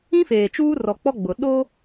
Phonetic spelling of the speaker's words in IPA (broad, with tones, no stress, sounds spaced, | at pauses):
ĩ˦ f eː˨ t͡ʃ uː˦ r ɔ˨ k͡p ɔ˦ ɡ͡b ʊ˨ ɗ o˦